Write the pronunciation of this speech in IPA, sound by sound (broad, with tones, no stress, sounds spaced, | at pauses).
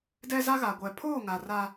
d ɛ˦ z a˦ ɣ a˨ ɡʷ ɛ˨ pʰ oː˦˨ ŋ a˨ r a˦